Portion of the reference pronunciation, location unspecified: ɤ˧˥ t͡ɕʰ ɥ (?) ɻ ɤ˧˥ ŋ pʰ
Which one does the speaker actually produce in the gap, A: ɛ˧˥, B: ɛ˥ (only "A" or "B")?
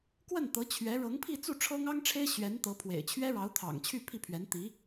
A